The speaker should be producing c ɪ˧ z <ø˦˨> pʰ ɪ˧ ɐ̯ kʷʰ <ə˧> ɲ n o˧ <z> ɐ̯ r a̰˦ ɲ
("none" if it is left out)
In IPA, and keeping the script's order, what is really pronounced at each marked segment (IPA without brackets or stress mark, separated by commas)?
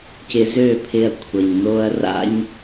ø˦˨, ə˨, none